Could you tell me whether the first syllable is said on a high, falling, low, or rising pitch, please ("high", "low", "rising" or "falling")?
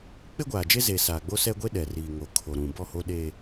high